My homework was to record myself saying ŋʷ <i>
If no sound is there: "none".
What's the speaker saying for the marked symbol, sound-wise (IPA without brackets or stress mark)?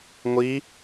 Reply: i